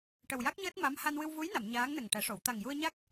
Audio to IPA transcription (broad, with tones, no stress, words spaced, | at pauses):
ʈə˨˩wja˦˥k̚ɲəː˦˥t̚ ma˧˥m ha˧nwɨ˧wvu˧˥jna˨˩˨m ɲaː˧˥ŋnə˨˩ŋʈɛ˨˩˦ ʂo˨˩˨w t̪a˨˩ŋju˧ə̯ɲa˦˥k̚